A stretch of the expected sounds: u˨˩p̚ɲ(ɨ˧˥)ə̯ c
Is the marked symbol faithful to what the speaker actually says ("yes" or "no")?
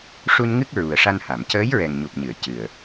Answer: no